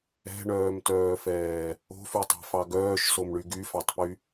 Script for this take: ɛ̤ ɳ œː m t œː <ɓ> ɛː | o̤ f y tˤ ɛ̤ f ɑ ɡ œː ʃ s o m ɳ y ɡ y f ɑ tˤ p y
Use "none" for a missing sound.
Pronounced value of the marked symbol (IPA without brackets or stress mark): f